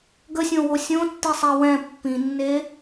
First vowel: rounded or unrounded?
unrounded